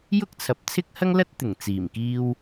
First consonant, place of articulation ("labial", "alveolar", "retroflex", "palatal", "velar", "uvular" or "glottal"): palatal